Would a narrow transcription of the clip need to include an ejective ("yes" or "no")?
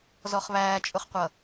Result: yes